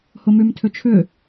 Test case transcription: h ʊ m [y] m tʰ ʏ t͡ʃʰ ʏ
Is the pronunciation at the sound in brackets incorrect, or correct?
correct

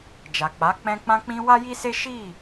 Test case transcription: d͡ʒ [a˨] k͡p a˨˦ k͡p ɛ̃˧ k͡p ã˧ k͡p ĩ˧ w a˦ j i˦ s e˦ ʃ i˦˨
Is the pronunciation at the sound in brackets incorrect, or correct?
correct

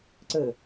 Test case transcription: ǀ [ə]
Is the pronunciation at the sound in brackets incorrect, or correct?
correct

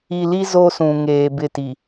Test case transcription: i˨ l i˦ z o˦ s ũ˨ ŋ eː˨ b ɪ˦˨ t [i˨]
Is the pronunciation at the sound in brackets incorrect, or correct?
correct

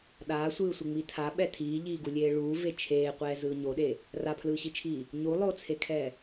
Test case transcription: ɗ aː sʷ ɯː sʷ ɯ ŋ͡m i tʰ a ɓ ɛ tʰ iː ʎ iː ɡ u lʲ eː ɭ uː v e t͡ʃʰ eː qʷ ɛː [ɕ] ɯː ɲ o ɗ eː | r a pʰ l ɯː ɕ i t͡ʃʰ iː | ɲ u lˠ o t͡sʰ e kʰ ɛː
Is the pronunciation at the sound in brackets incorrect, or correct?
incorrect: z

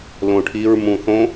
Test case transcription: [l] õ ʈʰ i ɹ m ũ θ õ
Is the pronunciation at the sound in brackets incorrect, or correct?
correct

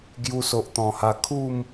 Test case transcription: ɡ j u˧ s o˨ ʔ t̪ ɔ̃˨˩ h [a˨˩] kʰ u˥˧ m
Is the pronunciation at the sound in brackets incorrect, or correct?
incorrect: a˧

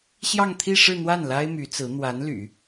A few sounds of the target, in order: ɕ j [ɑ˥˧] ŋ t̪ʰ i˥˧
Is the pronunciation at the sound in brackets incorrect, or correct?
correct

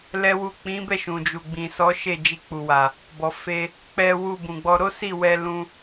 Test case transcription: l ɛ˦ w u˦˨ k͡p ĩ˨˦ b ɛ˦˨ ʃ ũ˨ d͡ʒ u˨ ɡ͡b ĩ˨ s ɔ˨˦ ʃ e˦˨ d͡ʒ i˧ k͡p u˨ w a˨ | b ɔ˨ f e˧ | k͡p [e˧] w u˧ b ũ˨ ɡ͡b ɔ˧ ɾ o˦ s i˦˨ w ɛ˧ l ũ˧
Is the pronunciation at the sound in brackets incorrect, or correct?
incorrect: ɛ˧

